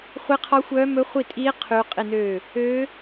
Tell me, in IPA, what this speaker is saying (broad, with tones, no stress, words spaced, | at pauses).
χʷi˦˥qʰɔ˦˥xʷœː˦˥ mɵ˦˥χʷi˥˧tʼiː˦˥ qʰy˦˥ qʼi˥˧nøː˥˧ | øː˦˥